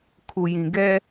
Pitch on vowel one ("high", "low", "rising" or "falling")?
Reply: low